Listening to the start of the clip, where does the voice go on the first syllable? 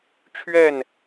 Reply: falling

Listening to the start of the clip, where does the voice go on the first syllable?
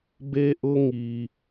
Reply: high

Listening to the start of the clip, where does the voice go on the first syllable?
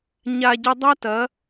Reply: low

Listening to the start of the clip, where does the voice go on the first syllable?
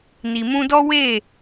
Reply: low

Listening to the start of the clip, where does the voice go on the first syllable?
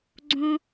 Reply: high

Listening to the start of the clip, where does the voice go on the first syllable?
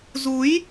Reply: rising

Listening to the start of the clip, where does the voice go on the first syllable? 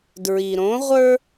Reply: low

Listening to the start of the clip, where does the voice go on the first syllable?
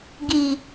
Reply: low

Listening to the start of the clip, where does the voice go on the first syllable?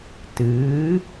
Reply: rising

